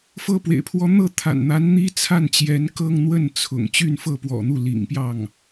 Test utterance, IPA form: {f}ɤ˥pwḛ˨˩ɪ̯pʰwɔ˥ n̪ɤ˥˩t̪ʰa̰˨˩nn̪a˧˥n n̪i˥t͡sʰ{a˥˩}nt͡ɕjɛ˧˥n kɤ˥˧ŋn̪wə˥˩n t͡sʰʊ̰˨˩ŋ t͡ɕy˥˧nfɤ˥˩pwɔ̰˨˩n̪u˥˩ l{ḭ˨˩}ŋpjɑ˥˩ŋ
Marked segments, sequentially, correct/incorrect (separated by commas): correct, correct, correct